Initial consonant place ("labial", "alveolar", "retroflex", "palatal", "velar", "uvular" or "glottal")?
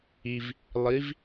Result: labial